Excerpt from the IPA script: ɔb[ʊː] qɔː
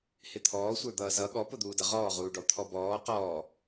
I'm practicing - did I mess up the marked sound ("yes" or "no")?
yes